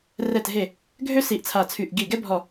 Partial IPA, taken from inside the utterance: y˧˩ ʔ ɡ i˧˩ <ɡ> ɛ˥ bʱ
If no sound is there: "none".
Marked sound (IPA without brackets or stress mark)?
ɡ